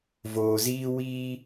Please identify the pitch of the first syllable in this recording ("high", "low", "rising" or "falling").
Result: low